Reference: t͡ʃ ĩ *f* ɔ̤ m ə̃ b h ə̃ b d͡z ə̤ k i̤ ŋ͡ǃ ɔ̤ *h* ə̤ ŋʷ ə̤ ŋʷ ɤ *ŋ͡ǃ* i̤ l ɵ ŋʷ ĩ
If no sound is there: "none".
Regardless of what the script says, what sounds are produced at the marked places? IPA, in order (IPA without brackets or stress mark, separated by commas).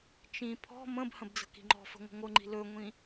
pʰ, f, ŋ͡ǃ